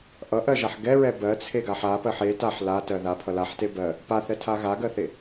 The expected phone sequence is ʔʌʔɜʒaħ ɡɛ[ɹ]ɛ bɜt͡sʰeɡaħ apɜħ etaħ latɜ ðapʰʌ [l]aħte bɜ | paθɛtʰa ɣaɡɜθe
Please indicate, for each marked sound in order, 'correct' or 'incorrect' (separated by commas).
correct, correct